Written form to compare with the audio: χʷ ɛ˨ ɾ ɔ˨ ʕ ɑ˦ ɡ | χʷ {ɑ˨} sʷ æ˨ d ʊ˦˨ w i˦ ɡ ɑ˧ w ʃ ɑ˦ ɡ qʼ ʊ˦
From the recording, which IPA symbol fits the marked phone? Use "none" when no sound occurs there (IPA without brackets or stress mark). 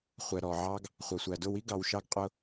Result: ɑ˨